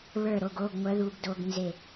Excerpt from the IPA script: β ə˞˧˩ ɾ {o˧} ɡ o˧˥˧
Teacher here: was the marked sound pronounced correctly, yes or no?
no